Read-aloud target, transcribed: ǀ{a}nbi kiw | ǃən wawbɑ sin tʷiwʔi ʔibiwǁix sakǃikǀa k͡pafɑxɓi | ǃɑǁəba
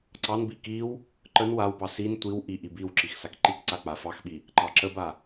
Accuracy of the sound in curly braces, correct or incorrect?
incorrect